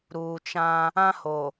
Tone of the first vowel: low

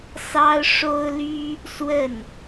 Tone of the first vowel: high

